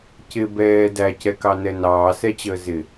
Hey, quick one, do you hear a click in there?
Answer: no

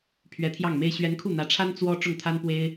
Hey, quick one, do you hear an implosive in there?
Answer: no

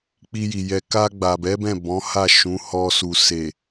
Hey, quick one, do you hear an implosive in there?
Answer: no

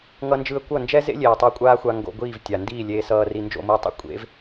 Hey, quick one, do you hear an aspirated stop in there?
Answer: no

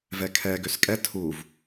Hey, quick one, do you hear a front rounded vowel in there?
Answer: yes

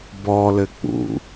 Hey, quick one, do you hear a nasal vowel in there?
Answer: no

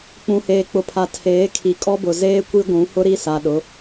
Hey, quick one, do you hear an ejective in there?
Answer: yes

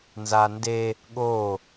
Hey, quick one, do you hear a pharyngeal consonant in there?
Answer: no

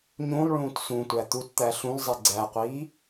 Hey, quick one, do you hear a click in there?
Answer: yes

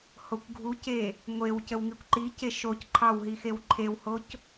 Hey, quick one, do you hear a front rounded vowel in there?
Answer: no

